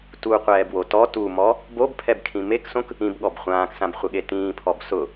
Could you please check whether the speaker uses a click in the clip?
no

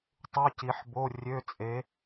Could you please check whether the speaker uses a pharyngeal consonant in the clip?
yes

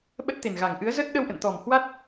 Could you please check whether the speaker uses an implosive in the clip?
yes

